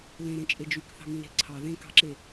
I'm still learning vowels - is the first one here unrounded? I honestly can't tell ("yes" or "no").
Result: yes